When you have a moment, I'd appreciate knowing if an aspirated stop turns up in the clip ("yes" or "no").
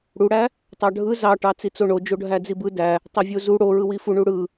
no